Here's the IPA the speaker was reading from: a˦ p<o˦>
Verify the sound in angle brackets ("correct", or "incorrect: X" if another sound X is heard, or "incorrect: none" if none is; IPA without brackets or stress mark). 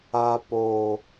correct